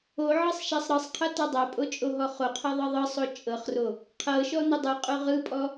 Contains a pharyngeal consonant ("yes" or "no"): yes